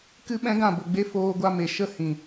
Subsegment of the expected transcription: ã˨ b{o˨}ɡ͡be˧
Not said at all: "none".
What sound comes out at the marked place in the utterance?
o˨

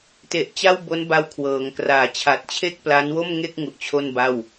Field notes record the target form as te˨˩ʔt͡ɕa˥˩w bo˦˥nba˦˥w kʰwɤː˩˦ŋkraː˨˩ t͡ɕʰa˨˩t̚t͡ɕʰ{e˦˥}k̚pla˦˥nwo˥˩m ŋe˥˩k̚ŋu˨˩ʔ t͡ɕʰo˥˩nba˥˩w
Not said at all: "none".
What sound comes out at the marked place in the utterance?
e˥˩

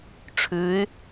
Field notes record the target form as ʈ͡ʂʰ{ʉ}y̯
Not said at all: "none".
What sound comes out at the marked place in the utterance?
ʉ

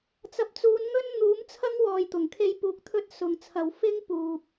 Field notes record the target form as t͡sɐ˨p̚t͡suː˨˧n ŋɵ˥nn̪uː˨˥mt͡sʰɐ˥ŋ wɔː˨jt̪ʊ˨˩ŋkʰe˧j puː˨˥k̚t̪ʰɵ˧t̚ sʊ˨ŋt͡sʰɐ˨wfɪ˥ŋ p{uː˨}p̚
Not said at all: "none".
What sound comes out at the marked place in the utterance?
uː˨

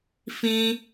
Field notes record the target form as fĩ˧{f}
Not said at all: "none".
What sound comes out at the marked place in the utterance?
none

